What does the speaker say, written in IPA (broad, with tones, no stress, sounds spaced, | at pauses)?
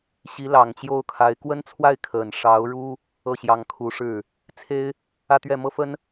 ɕ i˧˥ l ɑ˨˩ ŋ t͡ɕ j o˥˩ ʊ̯ kʰ a˧˥ ɪ̯ k w ə˥ n t͡sʰ w a˥˩ ɪ̯ kʰ ə˨˩ n ʂ ɑ˧˥ ʊ̯ ɻ u˥ | ɤ˥˩ ɕ j ɑ˧˥ ŋ kʰ u˧˥ ʂ ɻ̩˥˩ | t͡sʰ e˥ ɪ̯ | ä˥˧ t̪ ɥ ɛ˥˩ m ɤ˥ f ə˥ n